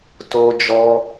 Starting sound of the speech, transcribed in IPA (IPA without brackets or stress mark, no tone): t